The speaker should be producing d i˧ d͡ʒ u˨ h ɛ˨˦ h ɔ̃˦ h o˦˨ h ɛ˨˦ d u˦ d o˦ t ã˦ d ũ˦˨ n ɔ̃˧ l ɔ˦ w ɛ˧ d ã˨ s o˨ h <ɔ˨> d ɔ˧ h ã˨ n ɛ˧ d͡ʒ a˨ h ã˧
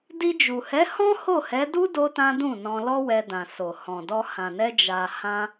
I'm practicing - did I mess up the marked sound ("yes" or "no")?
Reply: yes